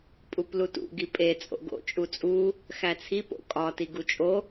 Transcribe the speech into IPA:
pʼ u p l u t ṵ ɡ i pʼ e t͡sʼ o̰ ɡ o̰ t͡ʃʼ u t͡sʼ u | x æ t͡sʰ i p o̰ kʼ ɒ t i ɡ u t͡ʃʼ o

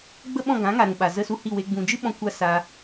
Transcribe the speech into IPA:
ɡ͡b ə˦ ɓ ɔ̃˦˨ ɡ ã˨˦ ŋ a˨ ɾ ũ˨ ɓ a˨ z ə˧ s u˧ h i˦˨ w e˧ ɡ͡b ũ˨ d͡ʒ ɨ˦ ɓ ɔ̃˧ kʷ a˦ s a˧

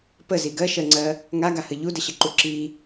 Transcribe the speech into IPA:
p ə z i ɡ ɜ ʃ ɜ ŋ͡ǀ ɜ | ŋ a ɡ a h ə ʎ u d ə ɕ ə ǃ u ǁ i

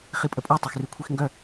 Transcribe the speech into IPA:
χ i pʼ ə pʼ ɔ tˤ e x r y kʷʰ i x ŋ ɡ œ

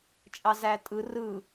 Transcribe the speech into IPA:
t͡ʃʼ ɑ z æ tʼ ɯ r ɯ

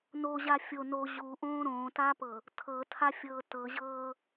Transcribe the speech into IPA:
n o ʑ a fʲ o n o ʑ u ʔ õː ɾ õː t a p ɤ | tʰ ɤ tʰ a fʲ ɤː t ɤ ʑ ɤː

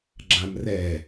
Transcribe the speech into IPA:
ɡ͡ǁ ã m r ɛ

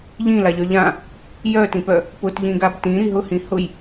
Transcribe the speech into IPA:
ʎ ĩ l a ʎ œ ʎ ã | j œ t ĩ p œ | p ʊ t ʎ ĩ ɡ a b t ĩ ɾ i ɦ ʊ h ĩ h ʊ j

